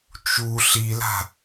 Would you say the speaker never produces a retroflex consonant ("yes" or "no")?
yes